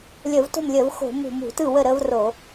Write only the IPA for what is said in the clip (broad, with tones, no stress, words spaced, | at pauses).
lʲəː˧˩˧vto̤˥˩mlʲəː˧˩˧v xo̤˧˩˧mṳ˧˩˧m ṳ˩˧tɯ˥˩wə˥˩ ɾəː˦vro˧˩˧